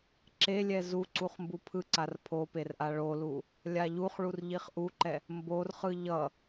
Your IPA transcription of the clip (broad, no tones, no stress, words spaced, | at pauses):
ǁelʲɛ zuǀuχ mbupʰɯǀar pʰoperʔa ɭolu | lʲaʎuχ ɭurʎiχʔuǃɛ | mborχɯ ʎʌ